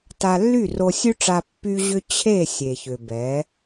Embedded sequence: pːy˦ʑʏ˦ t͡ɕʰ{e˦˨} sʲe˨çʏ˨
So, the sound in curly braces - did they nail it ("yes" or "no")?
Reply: yes